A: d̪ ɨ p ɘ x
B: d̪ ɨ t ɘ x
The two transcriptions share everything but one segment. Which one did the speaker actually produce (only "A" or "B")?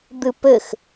A